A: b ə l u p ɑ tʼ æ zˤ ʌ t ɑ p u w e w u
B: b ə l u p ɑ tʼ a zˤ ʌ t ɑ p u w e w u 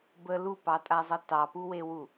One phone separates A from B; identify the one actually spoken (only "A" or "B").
B